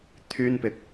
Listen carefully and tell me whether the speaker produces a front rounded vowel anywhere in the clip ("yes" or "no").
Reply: yes